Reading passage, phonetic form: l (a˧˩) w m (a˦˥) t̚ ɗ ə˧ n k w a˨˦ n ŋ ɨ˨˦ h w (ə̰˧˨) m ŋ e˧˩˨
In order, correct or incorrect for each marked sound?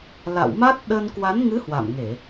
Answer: incorrect: a̰˧˨, correct, incorrect: a̰˧˨

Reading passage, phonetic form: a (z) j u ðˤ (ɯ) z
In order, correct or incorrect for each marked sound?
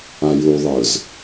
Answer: incorrect: none, correct

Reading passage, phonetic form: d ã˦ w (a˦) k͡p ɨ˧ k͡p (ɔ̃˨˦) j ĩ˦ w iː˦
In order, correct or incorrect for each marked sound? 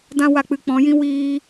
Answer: incorrect: a˧, correct

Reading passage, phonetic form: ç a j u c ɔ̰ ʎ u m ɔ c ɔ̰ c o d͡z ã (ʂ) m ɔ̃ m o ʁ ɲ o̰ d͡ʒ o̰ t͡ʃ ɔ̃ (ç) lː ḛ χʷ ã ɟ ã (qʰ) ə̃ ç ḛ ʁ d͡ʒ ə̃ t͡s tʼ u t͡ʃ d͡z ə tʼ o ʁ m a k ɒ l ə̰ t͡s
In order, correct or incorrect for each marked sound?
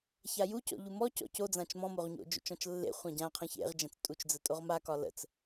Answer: incorrect: t͡ʃ, incorrect: t͡ʃ, correct

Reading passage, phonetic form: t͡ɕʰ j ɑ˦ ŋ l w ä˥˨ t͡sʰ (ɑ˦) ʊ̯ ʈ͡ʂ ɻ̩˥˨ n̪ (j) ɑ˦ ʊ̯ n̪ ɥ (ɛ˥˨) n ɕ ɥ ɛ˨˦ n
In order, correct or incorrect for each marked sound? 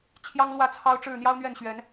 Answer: correct, correct, correct

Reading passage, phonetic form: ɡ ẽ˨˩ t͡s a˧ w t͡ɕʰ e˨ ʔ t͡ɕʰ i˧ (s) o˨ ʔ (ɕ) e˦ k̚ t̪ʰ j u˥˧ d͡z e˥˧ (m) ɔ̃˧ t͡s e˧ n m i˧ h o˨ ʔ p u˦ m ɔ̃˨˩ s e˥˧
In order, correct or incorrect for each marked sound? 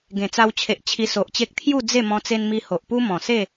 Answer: correct, incorrect: t͡ɕ, correct

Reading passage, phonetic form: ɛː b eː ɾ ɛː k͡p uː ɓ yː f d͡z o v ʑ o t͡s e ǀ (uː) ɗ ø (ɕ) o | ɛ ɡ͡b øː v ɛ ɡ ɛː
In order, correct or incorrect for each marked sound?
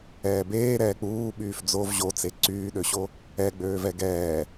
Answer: incorrect: yː, correct

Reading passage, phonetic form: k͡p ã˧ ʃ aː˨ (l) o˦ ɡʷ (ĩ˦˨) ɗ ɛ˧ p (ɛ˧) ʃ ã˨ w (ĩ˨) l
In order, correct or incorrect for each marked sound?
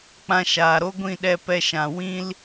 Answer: incorrect: ɾ, correct, correct, incorrect: ĩ˦

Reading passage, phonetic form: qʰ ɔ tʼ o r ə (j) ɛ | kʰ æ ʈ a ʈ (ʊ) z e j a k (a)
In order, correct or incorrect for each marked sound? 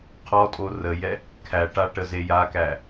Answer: correct, incorrect: ə, incorrect: æ

